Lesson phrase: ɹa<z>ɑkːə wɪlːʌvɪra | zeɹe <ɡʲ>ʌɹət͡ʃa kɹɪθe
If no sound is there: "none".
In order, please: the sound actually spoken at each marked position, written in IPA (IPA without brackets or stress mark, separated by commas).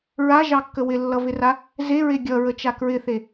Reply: ʒ, ɡʲ